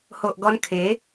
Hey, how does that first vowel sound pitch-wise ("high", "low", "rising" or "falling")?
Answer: low